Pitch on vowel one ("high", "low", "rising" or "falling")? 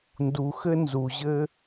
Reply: low